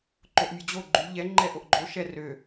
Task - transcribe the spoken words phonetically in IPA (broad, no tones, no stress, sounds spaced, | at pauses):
ǃ o ʔ mʲ o d͡ʑ o ɡ͡ǃ y ʎ ɛ ŋ͡ǃ ɛ ʔ o ʔ ɡ͡ǃ o ʃ ɛ r ø